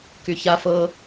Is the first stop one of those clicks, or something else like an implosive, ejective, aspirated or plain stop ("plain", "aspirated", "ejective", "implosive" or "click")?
plain